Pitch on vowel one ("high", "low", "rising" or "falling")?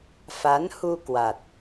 rising